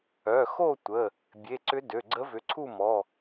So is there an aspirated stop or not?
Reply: yes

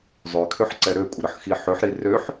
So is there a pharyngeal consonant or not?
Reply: yes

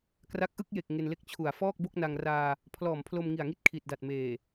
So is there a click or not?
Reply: no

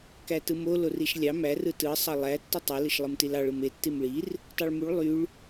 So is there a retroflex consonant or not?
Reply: yes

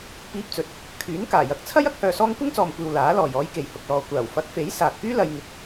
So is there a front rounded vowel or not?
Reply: yes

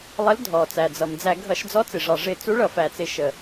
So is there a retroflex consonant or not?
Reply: yes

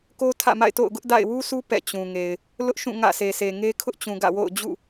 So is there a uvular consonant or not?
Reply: no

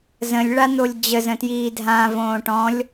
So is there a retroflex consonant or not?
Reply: yes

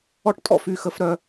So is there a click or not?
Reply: no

